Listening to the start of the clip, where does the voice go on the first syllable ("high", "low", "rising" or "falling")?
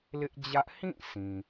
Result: high